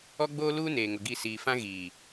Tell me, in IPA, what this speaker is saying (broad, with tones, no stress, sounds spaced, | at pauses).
ɔ˦ ɡ͡b oː˦ l uː˦ n eː˨ ŋ ʊ˨ ɡ i˦˨ s iː˨ f ã˦ ɣ iː˨